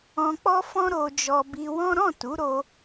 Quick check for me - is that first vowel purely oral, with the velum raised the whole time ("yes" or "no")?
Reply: no